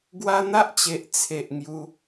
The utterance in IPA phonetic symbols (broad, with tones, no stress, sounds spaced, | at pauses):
ɡ w a˦ n̪ a˦ ʔ t͡ɕ e˨ ʔ t͡sʰ e˨ ʔ ŋ j u˧